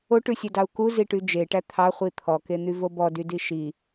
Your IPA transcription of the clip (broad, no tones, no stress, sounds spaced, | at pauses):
o ʈ ʉ sʲ e d ɑ u̯ k u z i ʈ y d͡ʒ e ʈ æ t̪ʰ ɑ χʷ i t̪ʰ ɔ k e n̪ y v o b ɔ d y d i ʃ i